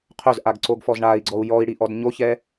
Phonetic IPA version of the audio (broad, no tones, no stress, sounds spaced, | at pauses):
qʰ ɵ z ʔ a ɡ ǀ o ɡ f ɔ z ɳ a i̯ ɡ͡ǀ ɔ u̯ j ɔ i̯ ɽ i ʔ ɔ d ɲ o ç ɛ